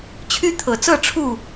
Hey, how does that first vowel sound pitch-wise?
high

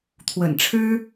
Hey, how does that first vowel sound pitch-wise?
low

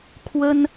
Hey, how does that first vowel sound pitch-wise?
high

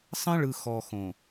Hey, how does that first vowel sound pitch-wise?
high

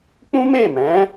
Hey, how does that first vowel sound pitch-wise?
high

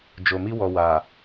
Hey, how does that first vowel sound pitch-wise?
low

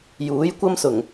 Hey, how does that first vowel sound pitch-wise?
rising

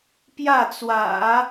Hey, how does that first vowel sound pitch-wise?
falling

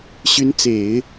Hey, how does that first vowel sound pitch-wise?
rising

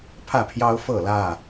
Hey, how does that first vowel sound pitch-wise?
falling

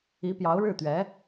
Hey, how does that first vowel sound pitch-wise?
rising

